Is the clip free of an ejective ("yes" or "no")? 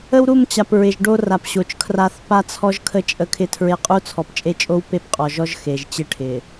no